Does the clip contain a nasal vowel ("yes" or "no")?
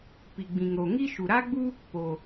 yes